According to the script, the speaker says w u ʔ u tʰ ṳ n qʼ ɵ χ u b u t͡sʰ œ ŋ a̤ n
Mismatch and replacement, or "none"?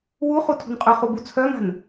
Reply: ʔ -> χ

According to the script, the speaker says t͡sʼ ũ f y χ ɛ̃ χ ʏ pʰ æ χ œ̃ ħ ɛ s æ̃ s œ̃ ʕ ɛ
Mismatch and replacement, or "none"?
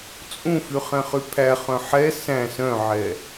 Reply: ʏ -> y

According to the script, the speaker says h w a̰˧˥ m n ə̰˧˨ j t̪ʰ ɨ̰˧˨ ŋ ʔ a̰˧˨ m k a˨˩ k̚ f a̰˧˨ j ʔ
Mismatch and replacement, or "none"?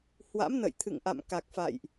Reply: none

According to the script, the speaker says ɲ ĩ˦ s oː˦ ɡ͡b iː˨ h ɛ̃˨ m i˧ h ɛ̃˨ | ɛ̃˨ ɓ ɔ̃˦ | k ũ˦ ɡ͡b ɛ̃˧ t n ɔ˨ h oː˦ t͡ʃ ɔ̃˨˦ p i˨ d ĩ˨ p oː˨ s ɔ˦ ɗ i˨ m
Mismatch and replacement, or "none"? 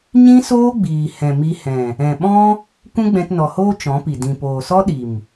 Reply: none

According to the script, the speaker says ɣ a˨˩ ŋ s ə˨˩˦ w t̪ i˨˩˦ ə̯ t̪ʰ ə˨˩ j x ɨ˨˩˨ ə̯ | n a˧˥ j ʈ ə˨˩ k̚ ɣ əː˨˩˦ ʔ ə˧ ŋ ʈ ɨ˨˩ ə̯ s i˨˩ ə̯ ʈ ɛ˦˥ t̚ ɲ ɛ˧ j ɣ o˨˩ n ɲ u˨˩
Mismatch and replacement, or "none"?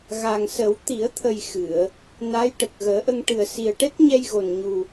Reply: none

